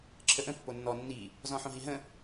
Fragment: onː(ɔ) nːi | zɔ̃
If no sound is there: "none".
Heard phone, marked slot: ɔ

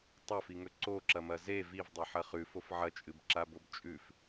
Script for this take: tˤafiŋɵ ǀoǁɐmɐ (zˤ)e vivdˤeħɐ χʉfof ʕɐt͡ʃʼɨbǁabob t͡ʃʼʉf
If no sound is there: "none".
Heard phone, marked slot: z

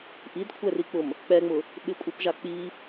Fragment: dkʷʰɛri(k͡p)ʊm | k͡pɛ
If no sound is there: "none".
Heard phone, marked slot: k͡p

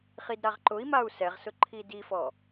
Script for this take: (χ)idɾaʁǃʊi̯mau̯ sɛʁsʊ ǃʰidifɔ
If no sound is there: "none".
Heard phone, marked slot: χ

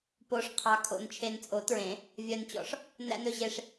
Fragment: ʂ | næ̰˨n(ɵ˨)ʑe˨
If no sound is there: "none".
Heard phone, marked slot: ɵ˨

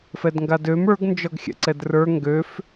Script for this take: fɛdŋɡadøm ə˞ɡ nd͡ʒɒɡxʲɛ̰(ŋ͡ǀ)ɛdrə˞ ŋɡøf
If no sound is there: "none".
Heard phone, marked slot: ǀ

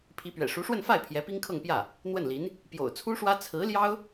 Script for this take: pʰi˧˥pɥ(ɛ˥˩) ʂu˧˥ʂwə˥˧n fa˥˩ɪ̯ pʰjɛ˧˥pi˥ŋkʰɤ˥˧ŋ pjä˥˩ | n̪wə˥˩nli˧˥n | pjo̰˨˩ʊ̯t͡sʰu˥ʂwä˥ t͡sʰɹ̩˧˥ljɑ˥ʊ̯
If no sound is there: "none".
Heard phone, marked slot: ɛ̰˨˩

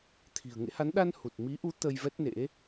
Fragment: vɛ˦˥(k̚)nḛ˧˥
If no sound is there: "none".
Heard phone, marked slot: t̚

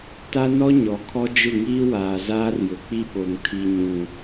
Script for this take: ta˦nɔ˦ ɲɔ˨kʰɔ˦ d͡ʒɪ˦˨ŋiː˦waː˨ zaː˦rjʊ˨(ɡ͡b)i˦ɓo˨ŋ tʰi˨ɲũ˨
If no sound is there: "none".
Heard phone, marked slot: k͡p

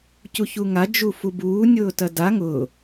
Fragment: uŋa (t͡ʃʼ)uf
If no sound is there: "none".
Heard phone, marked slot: d͡ʒ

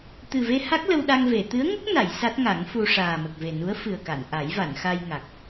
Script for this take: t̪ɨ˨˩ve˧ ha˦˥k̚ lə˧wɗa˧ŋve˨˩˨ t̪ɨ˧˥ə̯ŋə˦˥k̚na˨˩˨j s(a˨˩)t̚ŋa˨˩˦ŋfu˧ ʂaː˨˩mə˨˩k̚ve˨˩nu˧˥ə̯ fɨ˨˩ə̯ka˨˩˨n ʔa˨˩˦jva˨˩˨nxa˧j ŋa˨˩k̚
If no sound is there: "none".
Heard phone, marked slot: a˦˥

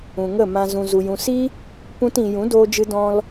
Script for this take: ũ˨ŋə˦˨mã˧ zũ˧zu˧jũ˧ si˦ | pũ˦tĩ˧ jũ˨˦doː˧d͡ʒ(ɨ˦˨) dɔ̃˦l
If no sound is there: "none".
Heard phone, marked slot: ɨ˧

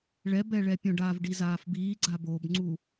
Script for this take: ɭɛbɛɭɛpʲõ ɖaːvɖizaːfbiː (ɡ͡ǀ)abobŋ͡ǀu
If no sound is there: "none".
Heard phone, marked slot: ɡ͡ǀ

